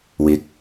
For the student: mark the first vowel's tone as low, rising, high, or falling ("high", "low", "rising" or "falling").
rising